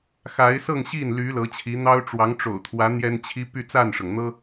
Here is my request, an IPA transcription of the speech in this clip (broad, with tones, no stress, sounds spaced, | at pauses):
x a˧˥ ɪ̯ s ɤ˥˧ ŋ ɕ i˥˩ n l y˧˥ l ɤ˧˥ t͡ɕʰ i˧˥ n̪ ɑ˥ ʊ̯ ʈ͡ʂ w ɑ˧˥ ŋ ʈ͡ʂ o̰˨˩ ʊ̯ t̪ʰ w ä˧˥ n̪ j ɛ˥ n t͡ɕʰ i˥ p y˥˧ t͡s a˥˩ n ʂ ɤ˩ ŋ n̪ ɤ˥